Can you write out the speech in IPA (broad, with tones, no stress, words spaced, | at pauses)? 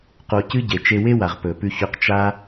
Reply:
qo˧cɨ˦ɟe˨ t͡ʃe˧we˦wa˨ʁ pɵ˨pʉ˧çɵ˧q t͡ʃa˦